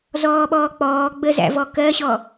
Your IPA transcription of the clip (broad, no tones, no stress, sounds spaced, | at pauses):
z ɔː ɓ ɔː k͡p ɔː ɡ͡b ə z æ̰ v ɔ k ɜ ɕ ɔ